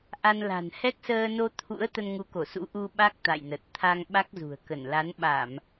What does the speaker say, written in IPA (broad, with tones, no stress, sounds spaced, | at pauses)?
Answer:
ʔ a˧ n l a̤˨˩ n h ɛ˦˥ k̚ s əː˧ n o˧ t̪ʰ ṵ˧˥ ə̯ t̪ ə˧ n ŋ u˨˦ k o˧˩ s ṵ˧˥ ʔ u˧ ɓ a˦˥ k̚ t̪ a̰˧˨ j n ə˨˩ t̚ t̪ʰ a˧ ŋ ɓ a˦˥ k̚ z ṳ˨˩ ə̯ k ə˧˩ n l a˨˦ n ɓ a˧˩˨ m